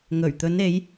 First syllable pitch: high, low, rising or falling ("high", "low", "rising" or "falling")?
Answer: low